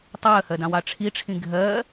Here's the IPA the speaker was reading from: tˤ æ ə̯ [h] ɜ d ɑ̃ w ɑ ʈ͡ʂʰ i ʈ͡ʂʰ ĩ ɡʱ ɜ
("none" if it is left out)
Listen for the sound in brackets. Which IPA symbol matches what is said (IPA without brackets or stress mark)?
h